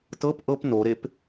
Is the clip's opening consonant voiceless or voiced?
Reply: voiceless